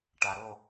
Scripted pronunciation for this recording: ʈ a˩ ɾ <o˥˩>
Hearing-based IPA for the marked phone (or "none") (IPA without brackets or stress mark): o˥˩